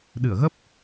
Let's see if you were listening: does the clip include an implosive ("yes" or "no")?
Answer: yes